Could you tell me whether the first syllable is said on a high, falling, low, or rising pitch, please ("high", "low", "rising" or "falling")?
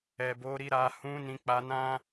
low